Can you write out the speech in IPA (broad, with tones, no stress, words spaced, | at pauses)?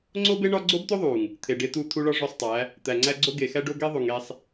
ŋ͡ǀo˦be˦ ɳɒ˦ ɡ͡ǀo˦bt̪o˦ðˤu˨ŋ | t̪ʰe˨ɖe˦t̪u˦˨ t̪ʰu˦ɭɒ˦ʐo˦˨sˤtˤæ˨˦ | t̪æ˨ŋ͡ǀæ˦ɡ͡ǀo˦ ɡe˨xæ˦ɖo˦ ɡe˦ðˤu˨ŋe˦sˤ